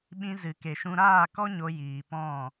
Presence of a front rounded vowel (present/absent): absent